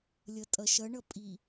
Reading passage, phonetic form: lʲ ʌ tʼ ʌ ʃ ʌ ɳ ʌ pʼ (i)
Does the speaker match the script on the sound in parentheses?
yes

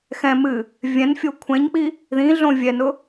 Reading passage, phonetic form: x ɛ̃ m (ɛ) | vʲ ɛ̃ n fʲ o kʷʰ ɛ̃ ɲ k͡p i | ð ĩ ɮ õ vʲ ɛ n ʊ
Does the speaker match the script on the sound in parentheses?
no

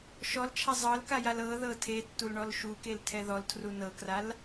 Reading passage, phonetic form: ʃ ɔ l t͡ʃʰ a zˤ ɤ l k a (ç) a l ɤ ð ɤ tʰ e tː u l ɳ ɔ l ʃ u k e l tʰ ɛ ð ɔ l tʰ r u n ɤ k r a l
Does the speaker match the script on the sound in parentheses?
no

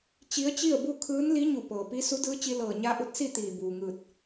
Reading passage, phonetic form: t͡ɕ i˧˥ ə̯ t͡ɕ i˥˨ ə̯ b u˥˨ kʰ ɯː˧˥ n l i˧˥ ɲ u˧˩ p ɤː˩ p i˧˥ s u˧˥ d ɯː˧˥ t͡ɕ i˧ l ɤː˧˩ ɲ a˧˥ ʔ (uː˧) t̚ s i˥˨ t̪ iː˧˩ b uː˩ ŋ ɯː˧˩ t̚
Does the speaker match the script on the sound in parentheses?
no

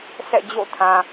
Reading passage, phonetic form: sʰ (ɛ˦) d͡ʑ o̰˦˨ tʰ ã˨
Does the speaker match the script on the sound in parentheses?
no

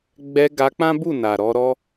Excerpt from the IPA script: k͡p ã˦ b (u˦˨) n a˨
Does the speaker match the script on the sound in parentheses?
yes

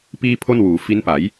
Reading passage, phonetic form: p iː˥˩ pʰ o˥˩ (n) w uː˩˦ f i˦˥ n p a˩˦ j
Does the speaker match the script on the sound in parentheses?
yes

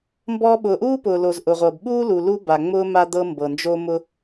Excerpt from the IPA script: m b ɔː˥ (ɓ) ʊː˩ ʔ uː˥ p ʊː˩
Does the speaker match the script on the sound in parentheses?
yes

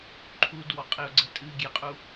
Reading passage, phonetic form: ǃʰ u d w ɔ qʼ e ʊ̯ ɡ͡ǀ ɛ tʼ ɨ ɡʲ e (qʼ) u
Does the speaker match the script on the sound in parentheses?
yes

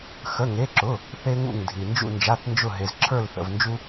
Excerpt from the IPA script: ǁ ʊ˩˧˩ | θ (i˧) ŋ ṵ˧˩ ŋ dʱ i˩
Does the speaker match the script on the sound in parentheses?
no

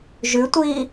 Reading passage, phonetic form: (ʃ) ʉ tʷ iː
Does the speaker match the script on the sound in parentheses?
no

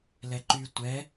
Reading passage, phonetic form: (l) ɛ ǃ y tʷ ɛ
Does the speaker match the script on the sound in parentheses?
yes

